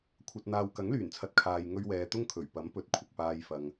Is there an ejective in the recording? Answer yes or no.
no